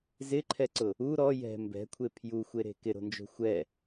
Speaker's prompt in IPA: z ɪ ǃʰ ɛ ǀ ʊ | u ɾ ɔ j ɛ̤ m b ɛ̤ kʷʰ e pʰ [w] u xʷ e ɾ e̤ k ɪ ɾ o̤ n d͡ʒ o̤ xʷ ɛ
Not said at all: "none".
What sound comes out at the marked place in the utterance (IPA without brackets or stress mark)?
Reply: j